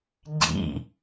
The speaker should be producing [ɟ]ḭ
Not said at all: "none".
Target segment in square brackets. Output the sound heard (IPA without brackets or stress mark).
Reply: ɟ